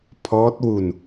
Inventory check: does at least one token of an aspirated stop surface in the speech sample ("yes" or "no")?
yes